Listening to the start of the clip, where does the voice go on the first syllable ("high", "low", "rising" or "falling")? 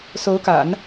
rising